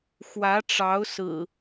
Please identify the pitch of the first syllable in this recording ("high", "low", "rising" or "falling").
rising